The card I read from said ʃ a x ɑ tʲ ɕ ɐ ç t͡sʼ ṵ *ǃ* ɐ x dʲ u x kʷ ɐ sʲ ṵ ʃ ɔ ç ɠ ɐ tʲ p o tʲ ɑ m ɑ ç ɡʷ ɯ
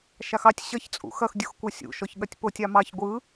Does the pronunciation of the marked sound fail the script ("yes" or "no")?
yes